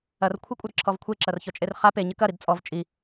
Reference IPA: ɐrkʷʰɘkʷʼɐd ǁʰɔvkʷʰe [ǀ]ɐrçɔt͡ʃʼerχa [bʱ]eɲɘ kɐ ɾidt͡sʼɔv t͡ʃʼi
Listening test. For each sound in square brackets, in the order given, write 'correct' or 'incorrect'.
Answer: incorrect, incorrect

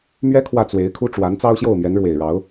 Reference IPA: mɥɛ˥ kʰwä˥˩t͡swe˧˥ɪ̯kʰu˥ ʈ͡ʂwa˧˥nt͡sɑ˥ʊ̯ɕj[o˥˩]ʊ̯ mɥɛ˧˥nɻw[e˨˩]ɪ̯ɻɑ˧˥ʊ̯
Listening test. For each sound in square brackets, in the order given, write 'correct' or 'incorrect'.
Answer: correct, correct

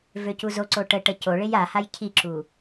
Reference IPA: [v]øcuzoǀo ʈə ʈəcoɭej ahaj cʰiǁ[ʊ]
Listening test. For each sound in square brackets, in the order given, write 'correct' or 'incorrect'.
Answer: correct, incorrect

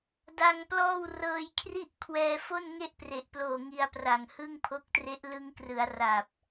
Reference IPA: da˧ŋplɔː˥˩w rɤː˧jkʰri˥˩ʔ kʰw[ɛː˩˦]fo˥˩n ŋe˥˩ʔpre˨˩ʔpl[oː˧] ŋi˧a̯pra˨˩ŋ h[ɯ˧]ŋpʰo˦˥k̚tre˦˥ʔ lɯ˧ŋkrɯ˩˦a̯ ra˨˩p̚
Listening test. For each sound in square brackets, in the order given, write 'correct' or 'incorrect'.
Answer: incorrect, incorrect, incorrect

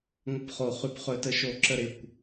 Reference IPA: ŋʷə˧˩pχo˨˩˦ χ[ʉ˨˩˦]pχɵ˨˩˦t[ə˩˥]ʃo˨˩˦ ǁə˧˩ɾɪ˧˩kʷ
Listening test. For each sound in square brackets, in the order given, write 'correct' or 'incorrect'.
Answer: correct, correct

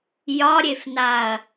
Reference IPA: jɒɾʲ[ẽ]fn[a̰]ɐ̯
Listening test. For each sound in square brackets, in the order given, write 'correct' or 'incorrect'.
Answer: incorrect, incorrect

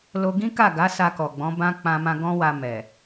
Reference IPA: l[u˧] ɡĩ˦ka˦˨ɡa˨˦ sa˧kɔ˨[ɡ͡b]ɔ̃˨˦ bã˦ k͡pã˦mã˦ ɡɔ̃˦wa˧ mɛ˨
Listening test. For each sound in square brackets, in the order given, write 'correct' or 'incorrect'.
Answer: incorrect, correct

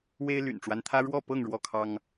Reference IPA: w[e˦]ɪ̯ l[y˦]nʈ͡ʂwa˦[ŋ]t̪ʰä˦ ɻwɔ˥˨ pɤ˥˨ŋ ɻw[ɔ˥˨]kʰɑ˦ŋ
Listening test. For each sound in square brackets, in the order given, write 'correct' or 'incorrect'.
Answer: correct, incorrect, incorrect, correct

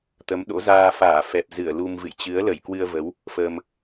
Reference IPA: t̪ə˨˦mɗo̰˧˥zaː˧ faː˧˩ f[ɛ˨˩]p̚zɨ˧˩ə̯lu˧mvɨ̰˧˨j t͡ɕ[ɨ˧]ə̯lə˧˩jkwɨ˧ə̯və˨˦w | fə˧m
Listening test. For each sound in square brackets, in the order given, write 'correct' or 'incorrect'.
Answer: correct, incorrect

